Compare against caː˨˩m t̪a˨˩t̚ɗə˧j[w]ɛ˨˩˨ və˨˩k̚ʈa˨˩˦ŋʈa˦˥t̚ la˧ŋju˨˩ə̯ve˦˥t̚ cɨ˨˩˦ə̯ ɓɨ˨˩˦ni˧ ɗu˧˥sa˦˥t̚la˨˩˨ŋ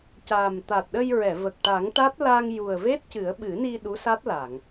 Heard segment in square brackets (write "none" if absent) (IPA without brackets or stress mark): ɹ